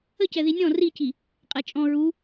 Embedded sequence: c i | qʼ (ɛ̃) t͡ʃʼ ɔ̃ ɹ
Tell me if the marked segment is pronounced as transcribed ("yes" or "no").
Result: no